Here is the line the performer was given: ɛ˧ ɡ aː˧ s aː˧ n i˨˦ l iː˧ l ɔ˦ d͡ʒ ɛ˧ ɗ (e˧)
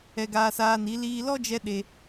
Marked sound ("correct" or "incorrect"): correct